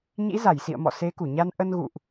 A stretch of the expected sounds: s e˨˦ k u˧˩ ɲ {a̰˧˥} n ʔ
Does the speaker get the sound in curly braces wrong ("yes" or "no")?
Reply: yes